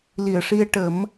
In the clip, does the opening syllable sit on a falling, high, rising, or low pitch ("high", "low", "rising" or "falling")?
low